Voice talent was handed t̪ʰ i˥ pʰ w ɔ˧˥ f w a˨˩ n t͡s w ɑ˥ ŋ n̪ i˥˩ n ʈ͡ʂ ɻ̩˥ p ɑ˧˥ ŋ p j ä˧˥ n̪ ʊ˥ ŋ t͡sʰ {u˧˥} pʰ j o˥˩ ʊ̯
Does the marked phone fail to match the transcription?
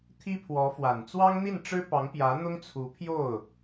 no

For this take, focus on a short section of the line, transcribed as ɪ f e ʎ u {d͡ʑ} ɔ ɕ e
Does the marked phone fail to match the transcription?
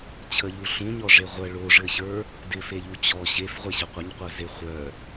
yes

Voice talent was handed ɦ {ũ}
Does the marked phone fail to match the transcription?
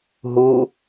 yes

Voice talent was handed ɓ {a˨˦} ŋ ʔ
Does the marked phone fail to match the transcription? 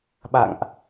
yes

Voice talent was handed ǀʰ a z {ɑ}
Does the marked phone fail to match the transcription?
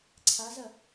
yes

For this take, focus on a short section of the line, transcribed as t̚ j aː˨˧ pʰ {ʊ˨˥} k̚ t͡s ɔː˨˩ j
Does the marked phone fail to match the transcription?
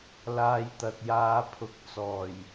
no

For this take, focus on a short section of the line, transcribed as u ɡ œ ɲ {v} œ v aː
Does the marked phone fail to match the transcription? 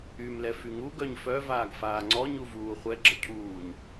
yes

